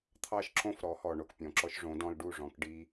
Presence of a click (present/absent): present